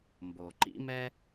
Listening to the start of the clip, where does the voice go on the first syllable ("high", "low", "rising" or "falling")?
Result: low